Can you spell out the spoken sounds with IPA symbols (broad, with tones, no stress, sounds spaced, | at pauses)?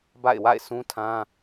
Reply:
b a̰˦˨ ɪ̯ w a̰˦˨ ɪ̯ sʰ ũ˦ tʰ ã˦